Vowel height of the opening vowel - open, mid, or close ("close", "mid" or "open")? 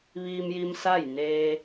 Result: close